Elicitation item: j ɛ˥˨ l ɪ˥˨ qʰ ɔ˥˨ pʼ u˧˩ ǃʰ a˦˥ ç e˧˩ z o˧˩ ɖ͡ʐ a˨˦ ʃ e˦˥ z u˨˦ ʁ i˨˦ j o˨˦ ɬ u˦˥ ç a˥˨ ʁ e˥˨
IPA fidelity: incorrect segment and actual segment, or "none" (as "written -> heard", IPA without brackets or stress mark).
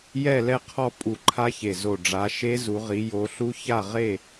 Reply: ɪ˥˨ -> ɛ˥˨